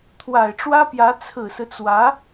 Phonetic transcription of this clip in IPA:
t̪ʰ w a˨˩ ɪ̯ ʈ͡ʂ w ä˥ p j ä˧˥ t͡sʰ ɹ̩˨˩ s ɹ̩˦ t͡s w ä˧˥

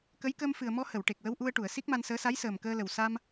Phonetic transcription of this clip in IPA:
k ə˧˥ j k əː˧ m f ɨ˨˩ ə̯ m ɔ˧ h ə˨˩˨ w ʈ e˨˩ k̚ w ə˧ w ʔ u˧ ə̯ ʈ u˨˩˨ ə̯ s i˦˥ k̚ m a˧ n s əː˧˥ s a˧˥ j s əː˨˩ m k əː˧ l ə˨˩ w s a˧ m

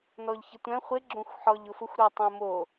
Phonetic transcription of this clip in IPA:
n ɔ ʎ ç ɪ tʷ ɛ̃ χʷ ɪ ɡ͡ǁ õ xʷ ħ ɔ ʎ ʊ f ʊ xʷ ɾ ɔ tˤ õ m o

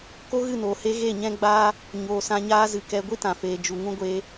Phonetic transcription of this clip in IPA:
k o˦ ɣ ɨ˦˨ n oː˨ h e˧ ɣ e˦˨ ɲ ɛ̃˦ ɡ͡b aː˦ | ɲ oː˨ s ã˧ ɲ aː˦ z ɨ˧ k ɛ˦ ɡʷ i˦ t ã˨ f eː˨ d͡ʒ u˨ ŋ ũ˦ ɡʷ eː˧

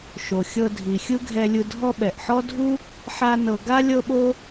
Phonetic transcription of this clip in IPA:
ʃ o˩ xʲ ɤ˧ dʱ i˩ xʲ ɯ˥ ɡʱ ɛ˧ lʲ ɯ˧ dʱ ɔ˥ ɓ ɛ˩ ʔ ħ ɔ˥ dʱ u˥ | ħ a˥ n ɤ˧ ɡ a˥ lʲ ɤ˥ ɓ o˥

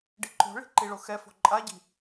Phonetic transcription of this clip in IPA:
ɖ i ǃ o̤ ɭ i̤ ǃ i ɭ o x ɛ f o̤ ǃʼ a ɟ i̤

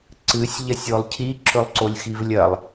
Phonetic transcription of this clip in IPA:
ǀ ɨ sʲ ʎ ɐ sʲ o lˠ cʰ i ǁʰ ɵ lˠ ǀ o lʲ x i v lʲ ɐ lˠ

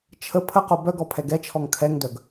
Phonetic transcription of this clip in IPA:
t͡ʃʰ ə pʰ ə q o b œ ɡ ɔ pʰ ɛ ɡ ɛ t͡ʃʰ ɔ ŋ kʰ ɛ ŋ d œ ɡ

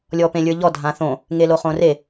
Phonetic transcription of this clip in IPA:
lʲ ɔ p ẽ lʲ ə˞ ʎ ɔ dʱ ã θ õ | ŋ e l o χ õ r e

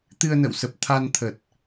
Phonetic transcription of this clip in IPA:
t̪ ɨ˧ ə̯ n ə̰˧˨ w s ə˨˩ p̚ t̪ʰ a˧ n t̪ʰ ə˨˩ t̚

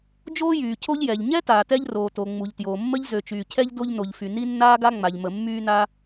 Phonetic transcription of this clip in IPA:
d͡ʒ oː˥ j yː˩ cʰ o˥ ʎ j ɛ˩ ʎ ɲ ɛ˥ t aː˩ t ɛ˥ ʎ r oː˩ t o˩ ŋ͡m u˩ ʎ t j oː˩ mː ə˥ ʎ z ø˩ t͡ʃ yː˩ cʰ ɛ˥ ʎ d o˥ ʎ n o˩ ʎ f y˩ n i˥ nː aː˥ ɡ a˥ ŋ͡m a˩ ʎ m ə˩ mː yː˥ n a˥

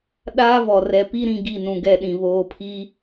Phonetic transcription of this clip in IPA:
ɗ aː˦ v ɔ˨ r ɛ˨ p i˦ ɾ ĩ˨ ɡ i˦˨ n ũ˨ ɡ ɛ˦˨ ɗ ĩ˨ β oː˨ pʰ i˦

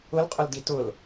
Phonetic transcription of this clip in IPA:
ʊ l qʼ ʊ l d i t ʊ l

